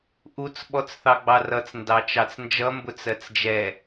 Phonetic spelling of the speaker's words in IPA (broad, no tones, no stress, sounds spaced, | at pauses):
ʔ u t͡s ɓ ɔ t͡s θ ɑ ɡ͡b ɑ r ʌ t͡s n d ɑ t͡ʃ ɑ t͡s n d͡ʒ ʌ m b ʊ t͡s ɜ t͡s d͡ʒ ɛ